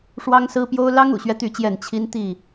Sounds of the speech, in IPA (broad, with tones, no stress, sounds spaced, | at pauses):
ʂ w ɑ˦ ŋ s ɹ̩˦ p j o˦ ʊ̯ l ɑ˦ ŋ ṵ˨˩ ɕ ɥ ɛ˦ t̪ y˥˨ t͡ɕ j ɛ˥˨ n t͡ɕʰ i˦ n t̪ i˥˨